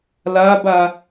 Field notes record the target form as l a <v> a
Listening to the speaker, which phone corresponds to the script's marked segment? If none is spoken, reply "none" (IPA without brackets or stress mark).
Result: b